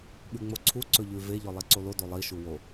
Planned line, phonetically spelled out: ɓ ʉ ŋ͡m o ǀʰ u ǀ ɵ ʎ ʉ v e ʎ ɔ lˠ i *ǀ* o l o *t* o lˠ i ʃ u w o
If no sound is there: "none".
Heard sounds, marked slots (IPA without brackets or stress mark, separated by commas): ǀ, d